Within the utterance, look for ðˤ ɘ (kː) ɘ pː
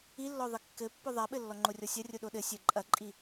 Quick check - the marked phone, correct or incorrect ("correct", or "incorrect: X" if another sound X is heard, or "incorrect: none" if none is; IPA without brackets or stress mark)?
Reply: correct